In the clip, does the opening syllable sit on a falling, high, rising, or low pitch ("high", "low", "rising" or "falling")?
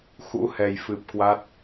rising